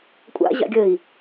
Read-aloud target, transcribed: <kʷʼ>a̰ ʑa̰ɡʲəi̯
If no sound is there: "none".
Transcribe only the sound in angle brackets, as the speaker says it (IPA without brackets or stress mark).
kʷʼ